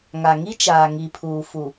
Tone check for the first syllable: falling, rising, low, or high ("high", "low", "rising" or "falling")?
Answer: low